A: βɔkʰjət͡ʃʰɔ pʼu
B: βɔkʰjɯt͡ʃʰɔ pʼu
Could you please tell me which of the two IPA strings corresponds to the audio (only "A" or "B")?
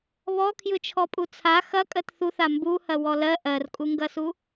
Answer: B